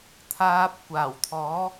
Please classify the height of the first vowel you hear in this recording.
low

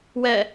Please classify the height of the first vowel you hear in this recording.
mid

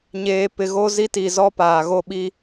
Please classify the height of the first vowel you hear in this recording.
mid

